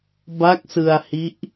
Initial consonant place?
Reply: labial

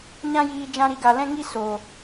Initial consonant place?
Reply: palatal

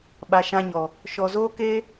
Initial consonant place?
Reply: labial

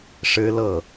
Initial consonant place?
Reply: retroflex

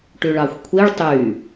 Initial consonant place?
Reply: retroflex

